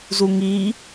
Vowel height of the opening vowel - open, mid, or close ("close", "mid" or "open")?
close